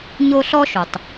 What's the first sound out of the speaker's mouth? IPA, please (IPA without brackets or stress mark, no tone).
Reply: ɲ